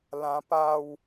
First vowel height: low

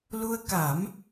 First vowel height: high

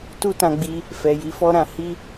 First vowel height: high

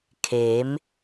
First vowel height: mid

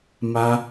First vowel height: low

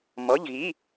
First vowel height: mid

